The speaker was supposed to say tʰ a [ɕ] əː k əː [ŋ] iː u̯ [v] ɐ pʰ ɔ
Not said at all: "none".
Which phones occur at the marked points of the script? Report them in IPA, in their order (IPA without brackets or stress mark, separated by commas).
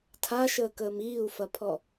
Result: ʃ, m, f